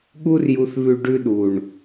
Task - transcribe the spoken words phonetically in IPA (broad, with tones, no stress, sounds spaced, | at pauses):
ɠ u˦ r j u˧ θ β ʉ˧ ɖ ʉ˧ ɗ u˨ ɳ